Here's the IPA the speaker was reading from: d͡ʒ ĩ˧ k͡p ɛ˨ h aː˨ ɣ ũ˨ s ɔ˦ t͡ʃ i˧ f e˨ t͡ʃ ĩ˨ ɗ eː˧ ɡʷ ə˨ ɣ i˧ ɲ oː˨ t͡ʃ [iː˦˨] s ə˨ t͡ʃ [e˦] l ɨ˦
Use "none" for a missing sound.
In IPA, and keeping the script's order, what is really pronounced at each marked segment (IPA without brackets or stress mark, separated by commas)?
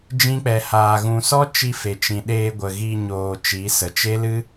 iː˨˦, e˦